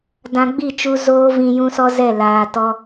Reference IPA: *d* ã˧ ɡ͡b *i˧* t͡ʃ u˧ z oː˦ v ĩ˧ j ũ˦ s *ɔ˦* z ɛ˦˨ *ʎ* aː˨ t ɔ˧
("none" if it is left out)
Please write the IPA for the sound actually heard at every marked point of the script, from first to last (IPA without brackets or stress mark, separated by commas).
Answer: d, i˦˨, ɔ˦, l